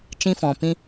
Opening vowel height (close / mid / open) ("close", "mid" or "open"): close